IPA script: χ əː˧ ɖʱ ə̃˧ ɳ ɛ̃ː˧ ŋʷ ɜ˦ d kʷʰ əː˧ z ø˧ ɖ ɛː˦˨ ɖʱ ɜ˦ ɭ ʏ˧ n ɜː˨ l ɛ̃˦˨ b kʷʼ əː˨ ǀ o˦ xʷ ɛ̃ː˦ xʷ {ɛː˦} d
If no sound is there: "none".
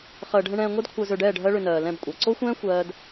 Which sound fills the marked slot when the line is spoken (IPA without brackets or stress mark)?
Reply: ɜː˦